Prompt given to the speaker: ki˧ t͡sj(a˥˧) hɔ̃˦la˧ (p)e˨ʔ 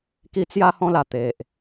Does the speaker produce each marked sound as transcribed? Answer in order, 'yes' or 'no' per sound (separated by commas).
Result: no, no